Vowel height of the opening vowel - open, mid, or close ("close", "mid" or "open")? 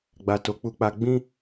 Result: open